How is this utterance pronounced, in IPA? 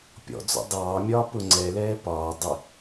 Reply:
pʲ ɔ̰ d͡z ɔ̰ dˤ ɑː mʲ ɒː p ʊ ŋ͡ǀ ɛ l ɛː p ɒː dˤ ɪ

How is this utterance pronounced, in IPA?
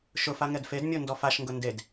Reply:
ʃ ʊ f a ŋ ɛ d f e d mʲ o n d ɔ f a ʃ ŋ ɡ ʊ n d e d

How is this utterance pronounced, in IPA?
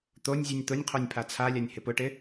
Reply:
t̪ o nʲ zʲ u nʲ t̪ ʊ nʲ qʰ o nʲ pʰ a t͡sʰ a lʲ a nʲ h ɪ p ʊ ʈ ɪ

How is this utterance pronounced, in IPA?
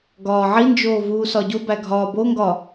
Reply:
ɡ ɒː ʕ i n d͡ʒ oː v uː s ɒ ɟ o b æ ɡʱ ɒː b o ŋ ɡ ɒ

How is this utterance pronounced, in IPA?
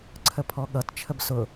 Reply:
ǀʰ ə pʰ ɔ ɠ ʌ t t͡ʃʰ ə b s ʊ

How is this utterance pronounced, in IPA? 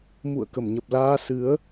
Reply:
m ṵ˧˨ ə̯ k ə˧˩ m ɲ ə˨˩ p̚ l aː˧ s ɨ˨˦ ə̯

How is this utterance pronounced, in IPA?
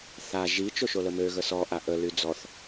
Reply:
θ a ʒ i t͡ʃ o ʃ o l ə m ø ɣ ə s ɔ ʔ a ʔ ə l y d͡z ɔ θ

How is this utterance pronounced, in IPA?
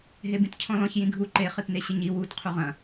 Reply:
ɦ e b ĩ t cʰ ɔ̃ l ɔ̃ ç j ĩ ɡʱ u ǃ e χ ɨ t n e ɕ ɘ ɲ i w u t qʰ u ʁ ɐ̃

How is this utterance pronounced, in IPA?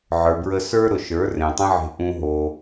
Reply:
ʕ ə˞˨ b ɹ ə˧ s ə˞˦ ɾ ʊ˨ ʃ ə˞˨˦ r ẽ˨ tˤ ə̃˦ ʕ e̤˧ ʔ ũ˧ ɦ o˧

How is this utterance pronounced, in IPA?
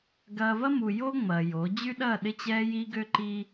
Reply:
ɡ ɐː˧ v ɐ˦ m u˨ j o˦ ŋ͡m ɐː˨ j o˨˦ d͡ʑ y˦ ɗ ɐː˦˨ ɗ ɪ˦ t͡ɕ ɛː˧ j i˧ ɡ ø˦ ǃ iː˦

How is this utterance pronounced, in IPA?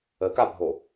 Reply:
ə k a bʱ o

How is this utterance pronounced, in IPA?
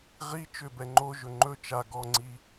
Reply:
ʁ i t͡ʃ ʏ b ɛ ŋ͡ǃ o ʒ ɵ ŋ͡ǃ ɵ t͡ʃ a ɡ ɔ ŋ͡ǀ i

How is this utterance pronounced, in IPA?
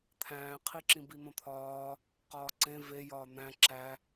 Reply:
t̪ʰ æ̃ː qʰ i ǁ ĩ b i n̪ õ t̪ʰ ɒː | q ɒː ǀ ẽ v e j ɒː n̪ æ̃ ǁ æ

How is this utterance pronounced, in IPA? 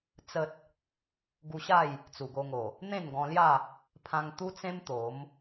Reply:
t͡s ə˦ t̚ | ɡ u˧ ɕ a˥˧ j | t͡s u˨˩ ɡ o˧ ŋ o˨˩ | n̪ ẽ˥˧ n ɡ ɔ̃˧ l j a˥˧ | pʰ ã˧ ŋ t̪ u˦ t͡s ẽ˦ m t̪ o˨˦ m

